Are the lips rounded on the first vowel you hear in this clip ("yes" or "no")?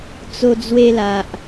yes